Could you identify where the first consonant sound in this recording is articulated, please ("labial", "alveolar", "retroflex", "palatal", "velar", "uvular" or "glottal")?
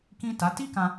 velar